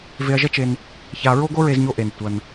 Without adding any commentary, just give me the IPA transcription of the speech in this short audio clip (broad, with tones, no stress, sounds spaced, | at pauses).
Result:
v e˧ ɐ̯ ʒ ɐ˥ t͡ʃ e˧ n | ç a˧ ɹ o˥ ɡ o˥ ɹ e˧ z ɲ o˧ ʔ e˩ n tʷ ɐ˩ n